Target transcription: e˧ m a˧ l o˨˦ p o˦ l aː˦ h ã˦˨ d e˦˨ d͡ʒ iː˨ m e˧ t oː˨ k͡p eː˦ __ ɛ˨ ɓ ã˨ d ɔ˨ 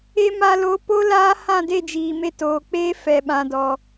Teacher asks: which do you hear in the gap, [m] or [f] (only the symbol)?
f